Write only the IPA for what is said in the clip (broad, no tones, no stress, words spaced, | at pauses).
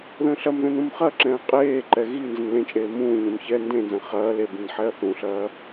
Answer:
ðə̃ːɬɐmðɛ̃n ũmχɐǁɛ̃ɐ̯ qʼeːǃɛ ɣi nzə̃nlẽt͡ʃʼeː mũːɲẽm çɛ ndẽnzɐ̃ χɐː le bĩnħɛɐ̯θũɬɐː